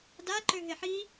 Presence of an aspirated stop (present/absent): absent